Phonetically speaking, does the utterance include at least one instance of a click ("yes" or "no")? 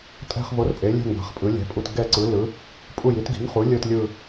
yes